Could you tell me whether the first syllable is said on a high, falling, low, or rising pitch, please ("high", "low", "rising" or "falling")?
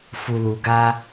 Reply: low